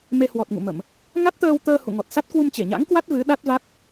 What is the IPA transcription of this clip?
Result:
m e˧ h w ɔ˨˩ t̚ ŋ ṵ˧˨ m ə˧˩˨ m | ŋ a˦˥ t̚ t̪ əː˧ w t̪ əː˧ h ṵ˧˨ ŋ ɔ˨˩ t̚ s a˦˥ t̚ k w u˧ m t͡ɕ e˧˩ ɲ a̰˧˥ ŋ k w a˦˥ t̚ v ɨ˨˦ ɗ a˦˥ t̚ v a˦˥ t̚

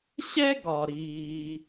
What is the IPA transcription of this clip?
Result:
ɕ ɛ˥ ɡ ɒ˩ ɾ iː˩

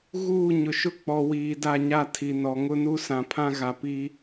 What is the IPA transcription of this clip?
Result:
ɣ uː˦˨ ɲ ʊ˨ ʃ ʊ˦ k͡p ɔ˨ w iː˨ d a˦˨ ɲ a˦˨ tʰ i˨ n ɔ˨ ŋ ʊ˦ n u˦ s ã˨ pʰ ã˦ ɣ a˨ p i˦

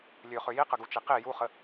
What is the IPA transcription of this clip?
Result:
lʲ ø χ ø j i q ə ɡ u t͡ʃ i q i j u χ ə

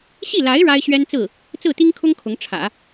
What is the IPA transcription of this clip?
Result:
ɕ i˥˩ l a˧˥ ɪ̯ ɻ a˥ ɪ̯ ɕ ɥ ɛ˥ n t͡s ɹ̩˥˩ | t͡s ɹ̩˥˩ t̪ i˥ ŋ kʰ ʊ˥ ŋ kʰ ʊ˧˥ ŋ ʈ͡ʂʰ ä̰˨˩˦

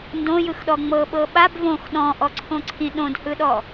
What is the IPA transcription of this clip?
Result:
n d õ j ɯ x ɗ ɔ ŋ͡m ɤ ɓ ɤ ɓ a b v õ x ɗ ɔ̃ ʔ ɔ ǀʰ õ ǀʰ ĩ ɗ õ d h ɯ ɗ ɔ

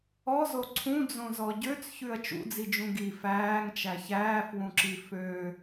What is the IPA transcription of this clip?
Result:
ɔ z o ǀʰ ũ d͡z õ z ɔ ɟ ø t͡s ç ʉ ɐ̯ t͡ʃ ṵ d͡z i d͡ʒ ũ ɡ i f æː ŋ t͡ʃ æ ç æː f w ũ ǁ i f ø

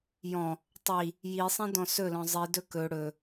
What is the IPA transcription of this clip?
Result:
j ɔ̃ | tˤ i | j i sˤ ĩ d ɔ̃ s ɵ l ɔ̃ zˤ i d ɵ k ɵ ɽ ɵ

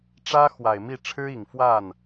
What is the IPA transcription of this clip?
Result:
ʈ͡ʂ ä˥ x w a˨˩ ɪ̯ m i˥˩ ʈ͡ʂʰ ɻ̩˥ i˨˩ ŋ f w a˥˩ n

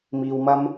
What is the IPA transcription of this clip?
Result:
m iː˧ w m ɐ˥ m

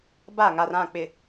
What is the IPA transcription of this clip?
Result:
b a˦˨ ŋ a˨ r ã˦˨ k͡p ɪ˨

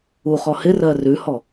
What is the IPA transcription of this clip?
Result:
u χ ɔ h ɪ r ɜ r ʉ h ɔ

